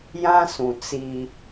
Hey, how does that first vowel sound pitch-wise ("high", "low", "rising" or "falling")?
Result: high